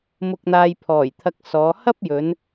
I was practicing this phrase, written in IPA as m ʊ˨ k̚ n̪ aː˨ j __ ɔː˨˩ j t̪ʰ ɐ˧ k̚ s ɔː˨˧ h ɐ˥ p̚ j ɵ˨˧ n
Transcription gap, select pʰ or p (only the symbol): pʰ